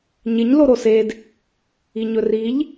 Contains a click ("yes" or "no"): no